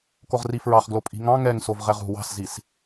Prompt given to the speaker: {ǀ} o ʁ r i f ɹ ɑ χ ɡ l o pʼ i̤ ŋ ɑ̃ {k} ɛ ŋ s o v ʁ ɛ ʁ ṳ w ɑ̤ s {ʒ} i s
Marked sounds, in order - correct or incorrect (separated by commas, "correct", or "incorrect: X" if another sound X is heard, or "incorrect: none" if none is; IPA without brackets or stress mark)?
incorrect: k, incorrect: ŋ, incorrect: z